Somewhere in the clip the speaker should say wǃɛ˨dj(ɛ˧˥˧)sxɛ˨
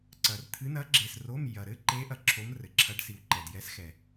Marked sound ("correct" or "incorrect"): incorrect